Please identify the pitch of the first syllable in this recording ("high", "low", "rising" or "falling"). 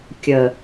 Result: low